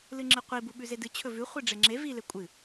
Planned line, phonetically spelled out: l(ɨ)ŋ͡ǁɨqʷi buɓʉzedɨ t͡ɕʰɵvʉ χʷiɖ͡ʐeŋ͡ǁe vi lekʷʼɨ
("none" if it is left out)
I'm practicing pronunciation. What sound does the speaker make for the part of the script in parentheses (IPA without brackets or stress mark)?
ɨ